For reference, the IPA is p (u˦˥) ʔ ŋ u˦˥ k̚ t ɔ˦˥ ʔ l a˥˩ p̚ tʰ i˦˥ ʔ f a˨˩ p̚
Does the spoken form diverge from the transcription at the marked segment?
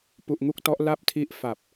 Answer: yes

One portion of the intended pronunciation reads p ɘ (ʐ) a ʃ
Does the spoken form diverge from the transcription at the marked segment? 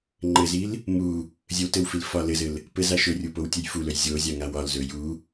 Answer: yes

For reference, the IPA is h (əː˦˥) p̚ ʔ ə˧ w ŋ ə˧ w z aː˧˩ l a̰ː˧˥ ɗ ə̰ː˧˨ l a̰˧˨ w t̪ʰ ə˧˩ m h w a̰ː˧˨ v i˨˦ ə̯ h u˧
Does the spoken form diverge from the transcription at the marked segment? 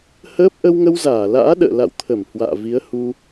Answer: no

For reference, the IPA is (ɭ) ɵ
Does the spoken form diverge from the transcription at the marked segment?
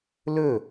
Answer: yes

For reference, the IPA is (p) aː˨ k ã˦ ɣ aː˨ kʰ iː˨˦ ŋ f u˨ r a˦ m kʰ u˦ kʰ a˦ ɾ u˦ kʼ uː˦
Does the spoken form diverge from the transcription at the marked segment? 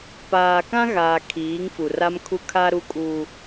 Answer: no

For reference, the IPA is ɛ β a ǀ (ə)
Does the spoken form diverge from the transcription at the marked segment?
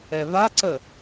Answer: no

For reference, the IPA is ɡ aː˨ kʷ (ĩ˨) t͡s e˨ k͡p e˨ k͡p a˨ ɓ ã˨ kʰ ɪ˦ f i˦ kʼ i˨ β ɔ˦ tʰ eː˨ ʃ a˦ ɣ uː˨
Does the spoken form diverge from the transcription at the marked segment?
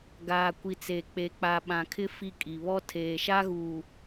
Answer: yes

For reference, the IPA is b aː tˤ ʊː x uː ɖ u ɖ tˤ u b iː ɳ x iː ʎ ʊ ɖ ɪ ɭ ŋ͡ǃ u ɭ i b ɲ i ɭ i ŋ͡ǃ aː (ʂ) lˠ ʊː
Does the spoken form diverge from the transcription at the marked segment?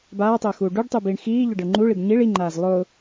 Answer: yes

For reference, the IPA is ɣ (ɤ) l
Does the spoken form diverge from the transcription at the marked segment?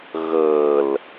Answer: no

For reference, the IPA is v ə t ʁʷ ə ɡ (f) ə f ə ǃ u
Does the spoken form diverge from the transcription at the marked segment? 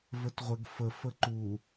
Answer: no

